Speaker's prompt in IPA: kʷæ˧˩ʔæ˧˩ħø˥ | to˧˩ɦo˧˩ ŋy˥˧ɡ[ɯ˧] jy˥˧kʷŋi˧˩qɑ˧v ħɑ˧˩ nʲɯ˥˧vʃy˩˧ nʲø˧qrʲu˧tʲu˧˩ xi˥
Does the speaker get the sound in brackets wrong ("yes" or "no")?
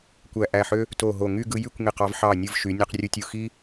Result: no